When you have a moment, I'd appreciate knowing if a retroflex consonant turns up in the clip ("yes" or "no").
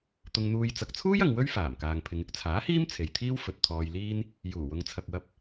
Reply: no